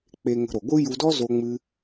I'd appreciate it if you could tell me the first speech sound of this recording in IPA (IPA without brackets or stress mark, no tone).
k͡p